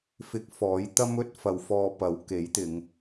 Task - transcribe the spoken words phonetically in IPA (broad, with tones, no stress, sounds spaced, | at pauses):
f ɪ˧ k̚ f ɔː˨˥ j t̪ ɐ˥ m ɵ˥ t̚ f ɐ˨ w f ɔː˧ p ɐ˨˥ w k e˨˥ j t̪ ɪ˨˧ ŋ